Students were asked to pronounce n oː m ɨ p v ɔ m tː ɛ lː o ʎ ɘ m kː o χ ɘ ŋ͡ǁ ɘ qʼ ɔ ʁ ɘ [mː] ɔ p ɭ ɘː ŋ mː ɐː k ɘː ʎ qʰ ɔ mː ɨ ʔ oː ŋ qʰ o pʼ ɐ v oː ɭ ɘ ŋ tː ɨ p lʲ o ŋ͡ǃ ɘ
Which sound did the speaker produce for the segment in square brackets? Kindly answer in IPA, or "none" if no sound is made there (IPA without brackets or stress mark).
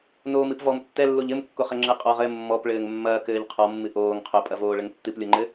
mː